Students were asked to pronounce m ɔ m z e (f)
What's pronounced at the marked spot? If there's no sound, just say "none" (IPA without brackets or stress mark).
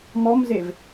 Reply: v